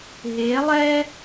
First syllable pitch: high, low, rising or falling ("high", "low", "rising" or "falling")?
rising